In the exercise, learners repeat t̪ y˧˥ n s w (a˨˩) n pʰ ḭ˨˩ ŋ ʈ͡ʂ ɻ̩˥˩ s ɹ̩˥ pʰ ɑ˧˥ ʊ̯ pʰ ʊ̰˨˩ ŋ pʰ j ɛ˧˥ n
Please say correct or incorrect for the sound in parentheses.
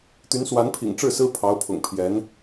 incorrect